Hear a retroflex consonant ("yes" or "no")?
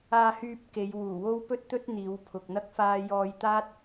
no